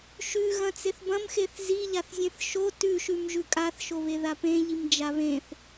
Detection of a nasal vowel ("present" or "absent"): present